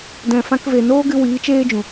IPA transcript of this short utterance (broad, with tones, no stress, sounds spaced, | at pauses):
d ɛ̃˨ f ã˧ k v e˨ n oː˦ ɡ ɨ˧ w iː˨˦ t͡ʃ eː˦ d͡ʒ ũ˨